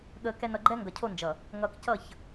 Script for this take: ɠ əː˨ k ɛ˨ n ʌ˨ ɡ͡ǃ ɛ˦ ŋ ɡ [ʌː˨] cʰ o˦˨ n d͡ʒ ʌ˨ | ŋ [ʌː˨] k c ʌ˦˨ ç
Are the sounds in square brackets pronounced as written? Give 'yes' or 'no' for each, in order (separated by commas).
no, yes